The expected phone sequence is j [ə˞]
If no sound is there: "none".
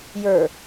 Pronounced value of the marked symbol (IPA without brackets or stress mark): ə˞